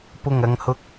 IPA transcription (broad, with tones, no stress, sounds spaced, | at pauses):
p ʊ˨˩ ŋ ɐ˨ ŋ h ʊ˨˥ k̚